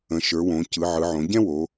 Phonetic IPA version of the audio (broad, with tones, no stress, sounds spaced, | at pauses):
ə̃˩˧ ʃ ə˞˩˧ w õ˩˧ c ɯ˩˧ ʕ ɯ˩˧ ʕ õ˩˧ ɟ ɛ̃˥ w o˩˧